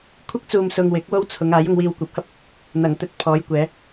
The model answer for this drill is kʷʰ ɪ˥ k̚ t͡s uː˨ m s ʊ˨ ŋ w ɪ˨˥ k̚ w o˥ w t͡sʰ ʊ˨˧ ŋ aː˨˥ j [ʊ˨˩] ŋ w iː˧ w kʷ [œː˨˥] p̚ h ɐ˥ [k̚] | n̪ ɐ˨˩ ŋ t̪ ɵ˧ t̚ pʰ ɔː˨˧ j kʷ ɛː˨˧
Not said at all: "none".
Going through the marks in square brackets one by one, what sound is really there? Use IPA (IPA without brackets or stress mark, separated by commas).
ʊ˧, ɛː˨˥, p̚